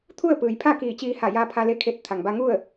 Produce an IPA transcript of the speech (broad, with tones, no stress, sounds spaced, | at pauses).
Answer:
t̪ʰ u˥˨ ə̯ p ɯː˩ j pʰ a˥˨ k iː˧˩ t͡ɕ iː˧ h a˧˩ j aː˧ pʰ a˧ l e˧˥ kʰ e˧˩ t̚ t̪ʰ a˩ ŋ b a˧ ŋ u˥˨ ə̯